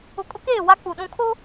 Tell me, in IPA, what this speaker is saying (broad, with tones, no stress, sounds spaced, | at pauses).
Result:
ʊ˨ kʼ ʊ˦ k eː˦˨ w a˦ k͡p u˨ ɗ ũ˨ kʰ o˦